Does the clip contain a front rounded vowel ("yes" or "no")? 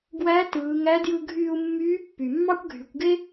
yes